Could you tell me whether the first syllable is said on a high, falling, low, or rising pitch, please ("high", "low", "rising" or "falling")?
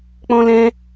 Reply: high